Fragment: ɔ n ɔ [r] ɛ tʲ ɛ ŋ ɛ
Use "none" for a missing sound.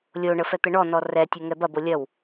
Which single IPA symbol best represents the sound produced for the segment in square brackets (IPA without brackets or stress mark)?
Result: r